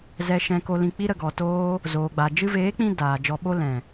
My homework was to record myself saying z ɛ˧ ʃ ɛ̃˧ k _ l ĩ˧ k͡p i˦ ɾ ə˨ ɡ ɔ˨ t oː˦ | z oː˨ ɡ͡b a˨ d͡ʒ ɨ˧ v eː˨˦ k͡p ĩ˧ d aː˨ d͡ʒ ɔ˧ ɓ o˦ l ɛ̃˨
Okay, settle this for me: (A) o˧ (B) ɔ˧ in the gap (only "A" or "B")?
A